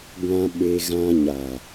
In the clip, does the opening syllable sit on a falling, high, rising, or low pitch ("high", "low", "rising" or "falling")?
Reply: low